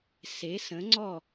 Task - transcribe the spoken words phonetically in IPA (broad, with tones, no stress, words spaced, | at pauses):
se˩˥sə̃˩˥ŋ͡ǀɔ˥˩